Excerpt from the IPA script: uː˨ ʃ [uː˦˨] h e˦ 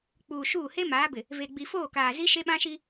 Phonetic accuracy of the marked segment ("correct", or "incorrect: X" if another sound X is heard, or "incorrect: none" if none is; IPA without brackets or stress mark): correct